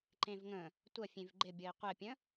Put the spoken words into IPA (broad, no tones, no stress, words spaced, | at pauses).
ǃẽvŋə̃ | tʷə fʲẽvɡ͡ǃɪbʲɤi̯ qʷɛpʲə̃